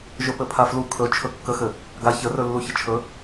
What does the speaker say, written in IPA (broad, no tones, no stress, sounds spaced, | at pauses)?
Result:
ʒ ɵ p ɘ pʰ a f l u kʰ ɵ t͡ʃʰ ɵ kː ə x ɘ | ɡ a ç ə r ɵ lː u ç ə t͡ʃʰ ɵ